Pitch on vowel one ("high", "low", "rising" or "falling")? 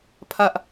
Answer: high